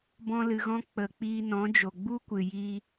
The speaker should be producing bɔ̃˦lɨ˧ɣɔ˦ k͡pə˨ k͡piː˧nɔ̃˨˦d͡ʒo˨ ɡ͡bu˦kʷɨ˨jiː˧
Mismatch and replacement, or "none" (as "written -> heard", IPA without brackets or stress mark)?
ɔ˦ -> ɔ̃˦